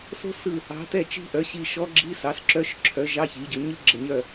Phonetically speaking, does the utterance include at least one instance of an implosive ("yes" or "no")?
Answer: no